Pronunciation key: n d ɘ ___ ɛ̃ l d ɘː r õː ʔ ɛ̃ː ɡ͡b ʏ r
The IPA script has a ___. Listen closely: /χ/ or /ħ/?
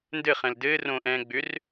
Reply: χ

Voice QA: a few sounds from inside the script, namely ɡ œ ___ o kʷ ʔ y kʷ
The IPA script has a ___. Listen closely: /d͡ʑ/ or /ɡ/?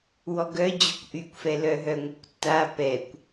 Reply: d͡ʑ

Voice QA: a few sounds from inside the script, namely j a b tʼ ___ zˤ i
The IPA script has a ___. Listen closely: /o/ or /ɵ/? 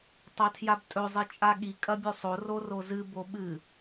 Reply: ɵ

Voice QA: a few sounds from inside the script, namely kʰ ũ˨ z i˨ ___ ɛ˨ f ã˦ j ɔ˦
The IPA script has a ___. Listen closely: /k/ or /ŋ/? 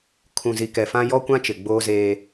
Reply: k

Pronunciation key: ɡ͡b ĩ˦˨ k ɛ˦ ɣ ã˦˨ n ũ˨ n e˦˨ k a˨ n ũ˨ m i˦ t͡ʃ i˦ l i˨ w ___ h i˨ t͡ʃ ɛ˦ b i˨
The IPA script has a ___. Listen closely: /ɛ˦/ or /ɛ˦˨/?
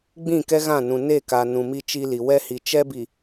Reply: ɛ˦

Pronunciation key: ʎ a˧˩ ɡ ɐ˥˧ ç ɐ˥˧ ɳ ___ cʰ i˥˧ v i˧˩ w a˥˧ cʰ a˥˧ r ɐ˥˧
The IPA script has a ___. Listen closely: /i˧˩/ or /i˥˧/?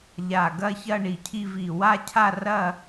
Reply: i˧˩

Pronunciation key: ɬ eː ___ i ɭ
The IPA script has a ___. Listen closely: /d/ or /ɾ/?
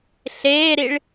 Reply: ɾ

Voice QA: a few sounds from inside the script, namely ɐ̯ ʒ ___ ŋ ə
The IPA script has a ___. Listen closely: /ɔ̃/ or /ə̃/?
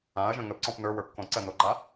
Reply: ə̃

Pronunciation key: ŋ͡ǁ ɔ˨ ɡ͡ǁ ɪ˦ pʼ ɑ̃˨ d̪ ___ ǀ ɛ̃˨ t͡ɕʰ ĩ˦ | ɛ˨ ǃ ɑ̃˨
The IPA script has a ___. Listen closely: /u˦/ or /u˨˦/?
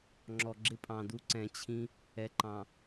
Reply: u˦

